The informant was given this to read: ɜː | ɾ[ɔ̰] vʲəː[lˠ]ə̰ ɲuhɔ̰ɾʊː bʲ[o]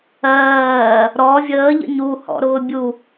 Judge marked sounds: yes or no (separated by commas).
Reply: no, no, no